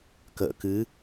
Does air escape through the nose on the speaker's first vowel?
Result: no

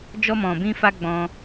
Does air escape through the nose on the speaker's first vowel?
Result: no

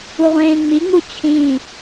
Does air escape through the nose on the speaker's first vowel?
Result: no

